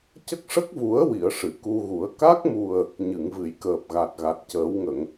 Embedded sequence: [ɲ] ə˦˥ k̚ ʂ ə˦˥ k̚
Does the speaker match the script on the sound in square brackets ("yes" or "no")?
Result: no